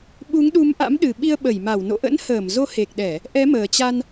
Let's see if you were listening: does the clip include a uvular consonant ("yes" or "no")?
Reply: no